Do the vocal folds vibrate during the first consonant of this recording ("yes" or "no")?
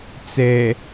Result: no